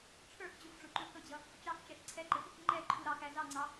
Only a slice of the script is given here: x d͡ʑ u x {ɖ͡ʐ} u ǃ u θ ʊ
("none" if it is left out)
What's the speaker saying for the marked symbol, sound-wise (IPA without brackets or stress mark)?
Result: ɖ͡ʐ